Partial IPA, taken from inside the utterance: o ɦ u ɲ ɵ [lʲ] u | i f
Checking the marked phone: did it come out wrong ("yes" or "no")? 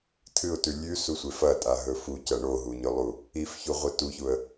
yes